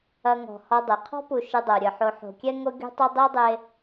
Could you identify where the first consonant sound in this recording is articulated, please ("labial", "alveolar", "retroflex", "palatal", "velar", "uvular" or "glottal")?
velar